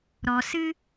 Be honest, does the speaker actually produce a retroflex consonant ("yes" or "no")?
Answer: no